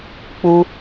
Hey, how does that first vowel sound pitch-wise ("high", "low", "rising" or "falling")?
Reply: high